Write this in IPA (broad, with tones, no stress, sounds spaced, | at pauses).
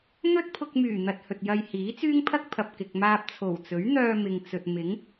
n̪ ɵ˥ t̚ pʰ ʊ˧ k̚ m yː˨˩ n̪ ɐ˧ t̚ h ɵ˨ t̚ j ɐ˧ j h iː˨˥ t͡s yː˥ ŋ pʰ ɐ˥ k̚ pʰ ɐ˨ p̚ k ɪ˨ k̚ m aː˧ p̚ t͡sʰ o˨˩ w t͡s ɵ˨˥ ɥ n̪ œː˧ m ɪ˨ ŋ t͡s ɵ˨ t̚ m ɪ˨˥ ŋ